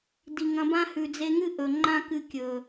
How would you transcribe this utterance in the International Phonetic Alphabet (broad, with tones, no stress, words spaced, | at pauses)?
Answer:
di˨ŋɐ̃˧bã˦ hʉ˨d͡ze˧ŋɨ˦ ʔɵ˨ŋ͡ǃã˦ kɨ˧kʲɵ˨